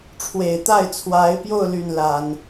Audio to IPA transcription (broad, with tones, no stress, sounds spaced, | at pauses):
ʈ͡ʂʰ w e˨˩ ɪ̯ t̪ a˥˩ ɪ̯ t͡sʰ w a˧˥ ɪ̯ p j o˥˧ ʊ̯ l y˥˩ n l a˨˩˦ n